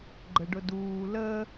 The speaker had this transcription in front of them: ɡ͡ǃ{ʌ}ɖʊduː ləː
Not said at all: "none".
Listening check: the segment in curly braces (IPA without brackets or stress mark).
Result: ə